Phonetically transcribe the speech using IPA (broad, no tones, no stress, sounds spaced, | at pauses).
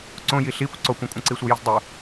ǀ õ j i ɬ i kʷ ǀ o kʷ ɐ̃ kʷʼ ɐ̃ ǀ i sʷ e j i z dˤ u